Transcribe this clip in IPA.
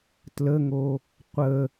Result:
t l ə ŋ o | qʷ ə

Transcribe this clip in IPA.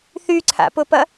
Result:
θ y ǀʰ a̰ p ʊ p ɐ

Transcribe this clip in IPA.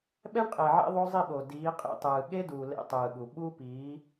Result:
ɓ ɛ˦ ɳ qʼ e˨ ʕ ḛ˦ ðˤ o˦ zˤ i˦˨ ɓ o˨ d iː˨˦ qʼ ḭ˦ tˤ ɯː˨ ɠ e˦ d uː˨ l ḛ˦ tˤ ɯː˨ ɠ u˨ ɓ u˦ p iː˨˦

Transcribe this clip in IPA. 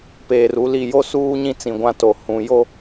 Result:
p eː˨ r u˦ l i˦˨ j o˦ s uː˦ ɲ ĩ˦ t͡s ĩ˨ ɡʷ ã˦ t o˨ h ũ˨ j o˦

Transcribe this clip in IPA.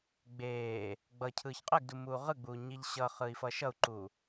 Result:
ɡ͡b eː | ɡ͡b ʌ cʰ ɯː ç qʼ ɛ ɡ d u m uː ʁ ɯ ɡ͡b uː ɲ i ʎ ɕ ʌ χ ɯ i̯ f ʌ ʃ ʌ u̯ ǃ u

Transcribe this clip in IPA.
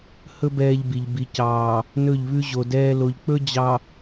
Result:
h ɵ˦ b ɛː˦ ʎ b i˨ ʎ b i˨ c ɑː˨ | n ɵ˦˨ ʎ β ʉ˦ ʑ o˨ d ɛː˦ l o˨ ʎ k͡p ɵ˦ d͡ʑ ɑ˨

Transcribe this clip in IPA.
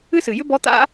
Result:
ɨ˥ s ɨ˩ j ʏ˥ b ɔ˧˥ t̪ a̰˥

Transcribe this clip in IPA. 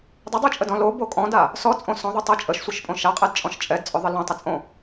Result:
dˤ ə dˤ ɯ t͡ʃʼ ə d ɔ̃ l o b o kʼ ɔ̃ d a | s ɔ t͡sʼ õ s ɔ̃ ðˤ ʏ tˤ ɛ t͡ʃʼ ə ʃ sʷ ɯ ʃ pʼ õ ʃ a qʼ ɛ d t͡ʃʼ ɔ̃ ʃ t͡ʃʼ ɛ d t͡sʼ ʏ ðˤ ə l õ tˤ ə t͡sʼ õ

